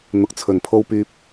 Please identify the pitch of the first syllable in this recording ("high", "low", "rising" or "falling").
rising